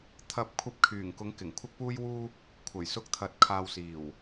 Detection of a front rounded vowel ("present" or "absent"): present